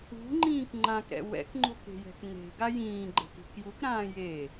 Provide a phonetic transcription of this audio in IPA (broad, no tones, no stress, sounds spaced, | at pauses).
ṳ ŋ͡ǃ ĩː k ŋ͡ǃ ã k ɾ ɛ̰ w ɛ̰ k ŋ͡ǃ o̤ k e̤ j ɛ̤ k n e̤ ɡ a j ĩː ɡ͡ǃ ɛ̤ k i̤ k j u k ɾ ãː j e